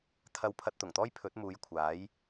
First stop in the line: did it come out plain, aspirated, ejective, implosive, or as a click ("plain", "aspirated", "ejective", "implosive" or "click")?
aspirated